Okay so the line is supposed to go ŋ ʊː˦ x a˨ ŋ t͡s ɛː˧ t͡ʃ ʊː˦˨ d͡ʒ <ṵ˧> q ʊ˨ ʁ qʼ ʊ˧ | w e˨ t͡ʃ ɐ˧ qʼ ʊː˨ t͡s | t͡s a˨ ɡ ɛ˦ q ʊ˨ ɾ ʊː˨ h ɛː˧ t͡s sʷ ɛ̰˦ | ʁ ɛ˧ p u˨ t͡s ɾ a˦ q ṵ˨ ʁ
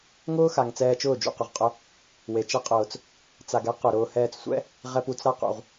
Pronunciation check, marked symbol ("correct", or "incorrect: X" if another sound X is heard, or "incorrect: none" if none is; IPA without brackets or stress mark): correct